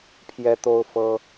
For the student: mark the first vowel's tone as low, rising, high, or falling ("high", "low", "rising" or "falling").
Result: high